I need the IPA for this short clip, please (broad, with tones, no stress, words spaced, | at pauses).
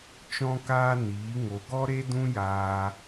t͡ʃɔ̃˦kaː˦niː˨˦ ŋo˨ ɡɔ˦ɾe˦dũ˦jaː˧